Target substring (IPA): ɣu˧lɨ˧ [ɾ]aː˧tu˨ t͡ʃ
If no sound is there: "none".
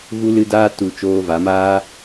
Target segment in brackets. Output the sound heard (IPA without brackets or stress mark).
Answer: d